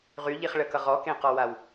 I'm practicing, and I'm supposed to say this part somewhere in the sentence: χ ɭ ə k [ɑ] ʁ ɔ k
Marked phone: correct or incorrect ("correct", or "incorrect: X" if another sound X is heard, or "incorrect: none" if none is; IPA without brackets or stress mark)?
incorrect: ʌ